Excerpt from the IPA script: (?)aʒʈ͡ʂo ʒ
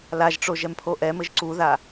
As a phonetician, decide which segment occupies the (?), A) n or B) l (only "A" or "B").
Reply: B